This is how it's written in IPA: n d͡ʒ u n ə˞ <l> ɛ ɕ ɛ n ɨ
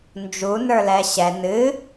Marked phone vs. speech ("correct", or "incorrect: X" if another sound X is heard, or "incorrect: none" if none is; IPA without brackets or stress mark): correct